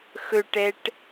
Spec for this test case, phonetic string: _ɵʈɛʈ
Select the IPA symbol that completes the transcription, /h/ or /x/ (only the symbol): x